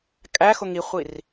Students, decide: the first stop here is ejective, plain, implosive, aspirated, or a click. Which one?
ejective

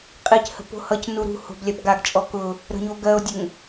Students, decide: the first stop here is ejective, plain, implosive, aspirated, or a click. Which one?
ejective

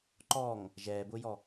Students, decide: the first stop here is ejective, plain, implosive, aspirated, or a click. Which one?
click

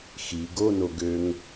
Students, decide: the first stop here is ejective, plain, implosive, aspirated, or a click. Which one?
plain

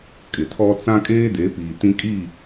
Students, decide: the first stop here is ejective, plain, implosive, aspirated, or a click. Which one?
ejective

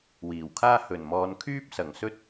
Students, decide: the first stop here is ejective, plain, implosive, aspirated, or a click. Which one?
aspirated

